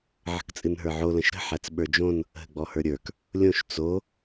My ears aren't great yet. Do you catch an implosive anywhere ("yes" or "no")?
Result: yes